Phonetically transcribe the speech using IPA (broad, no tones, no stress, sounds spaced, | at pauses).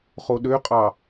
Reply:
χ o ɗ ø qʼ ɑ